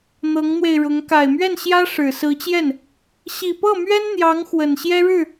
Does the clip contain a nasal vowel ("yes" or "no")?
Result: no